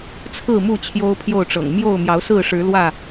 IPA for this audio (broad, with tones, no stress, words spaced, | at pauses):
t͡sʰɹ̩˥˨mu˥˨ t͡ɕʰjo˦ʊ̯pʰjo˥˨ʊ̯ʈ͡ʂɤ̰˨˩ŋ mjo˥˨ʊ̯mjɑ˨˦ʊ̯sɹ̩˥˨ʂɻ̩˨˦ lwä˥˨